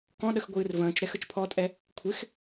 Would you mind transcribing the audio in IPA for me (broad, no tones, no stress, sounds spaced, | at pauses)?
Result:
k ɔ̃ ɗ ə x ɡʷ ɨː r v ə̃ː t͡ʃ ɾ ɛ x ə t͡ʃ pʰ ɔ tʼ ɛ | kʷʰ ɪ x